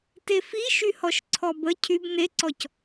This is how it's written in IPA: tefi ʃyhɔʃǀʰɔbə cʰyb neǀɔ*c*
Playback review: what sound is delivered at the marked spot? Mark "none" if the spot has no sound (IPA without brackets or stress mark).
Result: c